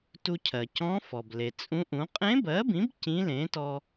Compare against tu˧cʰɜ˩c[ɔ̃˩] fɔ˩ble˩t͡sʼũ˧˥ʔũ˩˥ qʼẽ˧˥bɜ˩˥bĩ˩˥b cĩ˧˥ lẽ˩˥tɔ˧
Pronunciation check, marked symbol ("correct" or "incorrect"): incorrect